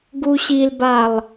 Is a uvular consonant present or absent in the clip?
absent